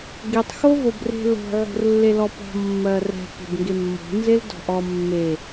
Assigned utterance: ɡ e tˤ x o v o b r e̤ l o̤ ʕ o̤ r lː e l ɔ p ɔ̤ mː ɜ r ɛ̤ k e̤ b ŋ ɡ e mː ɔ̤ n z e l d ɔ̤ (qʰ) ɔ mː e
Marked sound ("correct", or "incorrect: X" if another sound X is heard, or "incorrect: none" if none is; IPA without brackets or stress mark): incorrect: ʔ